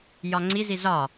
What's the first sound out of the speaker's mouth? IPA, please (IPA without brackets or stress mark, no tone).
j